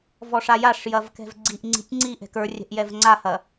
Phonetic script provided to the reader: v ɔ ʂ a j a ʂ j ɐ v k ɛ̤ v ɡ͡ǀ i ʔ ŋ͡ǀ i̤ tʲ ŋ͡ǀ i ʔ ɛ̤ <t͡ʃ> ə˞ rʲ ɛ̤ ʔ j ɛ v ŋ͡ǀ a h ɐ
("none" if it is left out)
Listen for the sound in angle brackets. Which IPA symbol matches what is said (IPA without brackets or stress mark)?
k